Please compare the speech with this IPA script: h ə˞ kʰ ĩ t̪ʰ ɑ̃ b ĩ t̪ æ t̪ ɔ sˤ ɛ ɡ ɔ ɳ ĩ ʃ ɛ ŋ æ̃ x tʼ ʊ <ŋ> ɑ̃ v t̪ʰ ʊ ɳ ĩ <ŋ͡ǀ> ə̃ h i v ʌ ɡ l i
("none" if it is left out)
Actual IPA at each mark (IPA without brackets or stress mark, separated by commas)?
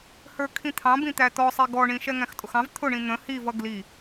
x, n̪